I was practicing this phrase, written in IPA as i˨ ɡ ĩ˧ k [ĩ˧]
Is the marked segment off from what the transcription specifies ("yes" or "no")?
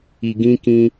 no